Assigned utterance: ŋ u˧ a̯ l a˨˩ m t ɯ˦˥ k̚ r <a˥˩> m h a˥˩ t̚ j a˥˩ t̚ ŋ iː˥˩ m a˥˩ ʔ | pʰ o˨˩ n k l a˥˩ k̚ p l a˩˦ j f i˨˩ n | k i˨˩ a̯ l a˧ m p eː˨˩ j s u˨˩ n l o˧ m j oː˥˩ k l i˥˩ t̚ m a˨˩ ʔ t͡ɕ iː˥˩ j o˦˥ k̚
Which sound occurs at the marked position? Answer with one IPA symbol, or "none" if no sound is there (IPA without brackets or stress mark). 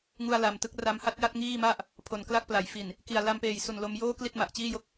a˧